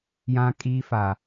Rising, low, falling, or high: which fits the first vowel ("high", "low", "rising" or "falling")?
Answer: high